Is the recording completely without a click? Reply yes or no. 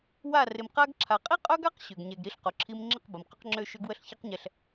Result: no